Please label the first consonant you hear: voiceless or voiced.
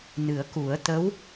voiced